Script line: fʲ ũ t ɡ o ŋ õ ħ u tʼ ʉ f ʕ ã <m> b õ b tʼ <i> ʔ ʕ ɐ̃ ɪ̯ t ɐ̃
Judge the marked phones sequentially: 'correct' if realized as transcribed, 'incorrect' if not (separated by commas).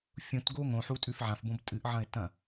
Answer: incorrect, incorrect